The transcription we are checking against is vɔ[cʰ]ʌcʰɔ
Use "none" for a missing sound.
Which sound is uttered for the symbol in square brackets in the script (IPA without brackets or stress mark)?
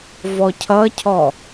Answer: cʰ